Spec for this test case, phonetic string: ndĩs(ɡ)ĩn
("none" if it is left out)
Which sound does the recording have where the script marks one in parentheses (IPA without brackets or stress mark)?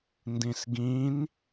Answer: ɡ